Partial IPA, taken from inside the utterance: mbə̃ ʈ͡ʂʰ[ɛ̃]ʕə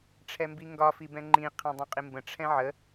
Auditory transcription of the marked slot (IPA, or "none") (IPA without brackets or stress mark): ɛ̃